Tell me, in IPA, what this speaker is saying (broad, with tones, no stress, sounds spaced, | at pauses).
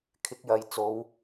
kʰ ɪ˨˥ k̚ j ɐ˨˧ j t͡s o˨˧ w